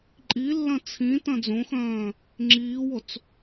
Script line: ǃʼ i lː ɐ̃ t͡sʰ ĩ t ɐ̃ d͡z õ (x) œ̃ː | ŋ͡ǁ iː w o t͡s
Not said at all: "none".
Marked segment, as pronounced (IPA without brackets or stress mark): x